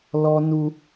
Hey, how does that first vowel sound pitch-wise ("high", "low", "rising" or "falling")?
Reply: high